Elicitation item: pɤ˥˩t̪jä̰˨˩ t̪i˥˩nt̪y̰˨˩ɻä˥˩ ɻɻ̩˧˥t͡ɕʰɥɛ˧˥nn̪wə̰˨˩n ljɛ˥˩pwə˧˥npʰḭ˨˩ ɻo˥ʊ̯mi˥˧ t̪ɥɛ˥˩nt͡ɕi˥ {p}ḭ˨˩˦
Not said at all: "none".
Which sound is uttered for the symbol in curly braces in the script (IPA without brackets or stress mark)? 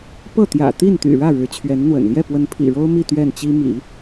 m